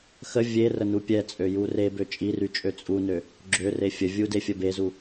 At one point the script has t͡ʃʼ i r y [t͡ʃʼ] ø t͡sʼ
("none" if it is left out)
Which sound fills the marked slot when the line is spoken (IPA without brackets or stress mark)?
t͡ʃʼ